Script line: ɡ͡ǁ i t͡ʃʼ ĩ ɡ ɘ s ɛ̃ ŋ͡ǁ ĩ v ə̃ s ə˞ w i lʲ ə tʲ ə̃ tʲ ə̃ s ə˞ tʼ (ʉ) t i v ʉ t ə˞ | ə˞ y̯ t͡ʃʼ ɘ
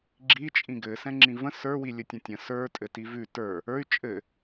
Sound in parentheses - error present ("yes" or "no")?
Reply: yes